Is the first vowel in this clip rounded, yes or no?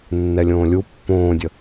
no